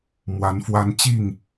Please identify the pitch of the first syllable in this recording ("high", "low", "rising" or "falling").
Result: rising